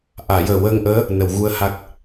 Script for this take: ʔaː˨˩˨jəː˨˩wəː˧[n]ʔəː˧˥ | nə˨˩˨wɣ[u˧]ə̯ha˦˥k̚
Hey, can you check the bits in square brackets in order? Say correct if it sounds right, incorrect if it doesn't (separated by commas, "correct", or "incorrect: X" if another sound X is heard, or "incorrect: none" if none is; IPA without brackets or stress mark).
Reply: incorrect: ŋ, correct